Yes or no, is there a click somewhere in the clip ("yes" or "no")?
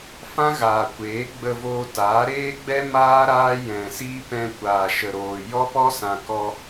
no